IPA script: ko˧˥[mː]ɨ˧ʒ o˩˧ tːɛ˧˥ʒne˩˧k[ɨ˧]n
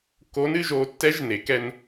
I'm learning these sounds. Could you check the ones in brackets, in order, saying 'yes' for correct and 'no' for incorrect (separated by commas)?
no, no